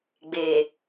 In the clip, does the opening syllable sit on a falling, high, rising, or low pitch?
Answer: low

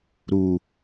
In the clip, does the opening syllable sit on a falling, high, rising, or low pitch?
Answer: low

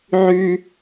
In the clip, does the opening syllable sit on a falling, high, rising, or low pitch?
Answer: high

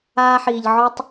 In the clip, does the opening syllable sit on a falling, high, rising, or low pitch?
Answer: high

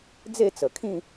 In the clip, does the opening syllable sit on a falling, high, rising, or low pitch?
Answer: falling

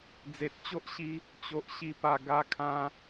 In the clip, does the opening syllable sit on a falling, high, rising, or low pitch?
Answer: low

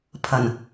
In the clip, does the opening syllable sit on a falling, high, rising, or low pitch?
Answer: low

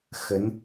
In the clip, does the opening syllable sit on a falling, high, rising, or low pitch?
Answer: rising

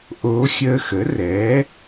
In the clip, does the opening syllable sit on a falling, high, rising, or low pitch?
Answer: rising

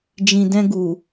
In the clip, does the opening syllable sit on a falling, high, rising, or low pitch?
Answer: low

